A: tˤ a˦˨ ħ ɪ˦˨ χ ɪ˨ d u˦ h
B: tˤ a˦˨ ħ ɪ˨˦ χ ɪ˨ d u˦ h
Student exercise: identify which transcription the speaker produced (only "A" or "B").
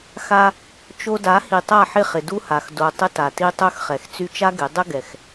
A